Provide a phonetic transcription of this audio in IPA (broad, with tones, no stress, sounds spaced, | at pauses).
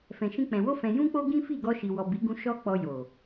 f ɛ̃˨ ʃ ĩ˧ k͡p ɛ̃˨ w o˧ f ɛ̃˨ j ũ˧ k͡p o˧ ɡ ĩ˦ f i˦˨ ɡ ɔ˧ ʃ i˨ w ɔ˨ b i˨˦ ɡ ũ˧ ʃ ɔ˦ k͡p ɔ˧ j o˨